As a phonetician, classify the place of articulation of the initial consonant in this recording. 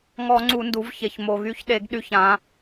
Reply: velar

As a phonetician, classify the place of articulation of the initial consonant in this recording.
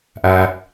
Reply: glottal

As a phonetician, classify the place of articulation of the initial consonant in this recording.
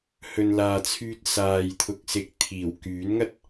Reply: glottal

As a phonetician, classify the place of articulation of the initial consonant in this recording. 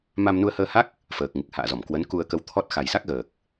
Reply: labial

